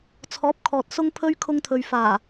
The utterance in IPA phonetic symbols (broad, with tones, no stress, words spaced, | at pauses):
t͡sʰɔː˨˥p̚kʰɔː˨t̚ sʊ˥ŋpʰɵ˥ɥ kʰʊ˧ŋt̪ʰɵ˨ɥfaː˨˩